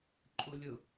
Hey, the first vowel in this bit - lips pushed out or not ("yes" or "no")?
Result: yes